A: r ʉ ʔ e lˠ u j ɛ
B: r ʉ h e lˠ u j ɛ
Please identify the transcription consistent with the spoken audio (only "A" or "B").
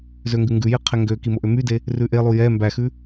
A